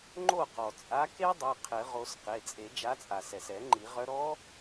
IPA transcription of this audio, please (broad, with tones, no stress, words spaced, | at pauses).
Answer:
ŋ͡ǃo˥˩qɔ˩ t͡sʼa˨˦ ke˦˥dˤɛ˩˧˩ qʰɘ˨˩˦ʁo˨˦s qe˩˧˩t͡sʼe˨˩˦ d͡ʒa˨˦t͡sʼa˩sɛ˩sɛ˨˩˦ ŋ͡ǃi˨˩˦ʁœ˦˥ ɾɔ˦˥